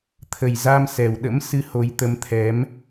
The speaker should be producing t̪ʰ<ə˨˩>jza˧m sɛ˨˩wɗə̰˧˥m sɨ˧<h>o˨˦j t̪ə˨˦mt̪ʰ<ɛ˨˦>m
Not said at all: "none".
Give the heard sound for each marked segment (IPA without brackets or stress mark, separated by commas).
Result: ə˨˩, h, ɛ˨˦